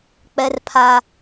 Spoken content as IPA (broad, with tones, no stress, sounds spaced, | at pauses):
k͡p ɛ˦ r pʰ a˦